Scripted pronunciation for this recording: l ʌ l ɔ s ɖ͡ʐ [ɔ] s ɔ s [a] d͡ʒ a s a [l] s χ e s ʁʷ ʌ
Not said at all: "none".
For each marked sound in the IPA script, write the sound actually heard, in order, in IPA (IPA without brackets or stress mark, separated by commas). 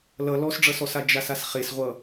ʌ, a, none